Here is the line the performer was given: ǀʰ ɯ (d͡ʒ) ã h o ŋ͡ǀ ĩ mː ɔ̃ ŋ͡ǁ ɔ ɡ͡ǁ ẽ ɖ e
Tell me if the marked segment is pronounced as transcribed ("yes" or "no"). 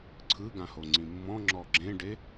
no